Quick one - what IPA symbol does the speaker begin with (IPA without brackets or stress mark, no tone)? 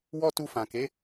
w